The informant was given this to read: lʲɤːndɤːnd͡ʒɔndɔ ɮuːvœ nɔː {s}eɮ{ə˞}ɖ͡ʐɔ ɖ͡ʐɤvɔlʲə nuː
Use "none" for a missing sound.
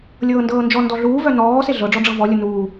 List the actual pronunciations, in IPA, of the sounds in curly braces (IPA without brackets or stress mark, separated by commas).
s, ɤ